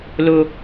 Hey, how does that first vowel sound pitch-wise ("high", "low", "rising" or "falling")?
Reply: low